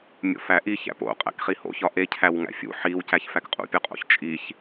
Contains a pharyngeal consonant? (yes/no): yes